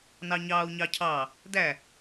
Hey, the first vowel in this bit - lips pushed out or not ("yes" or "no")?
no